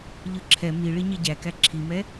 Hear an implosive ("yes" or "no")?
no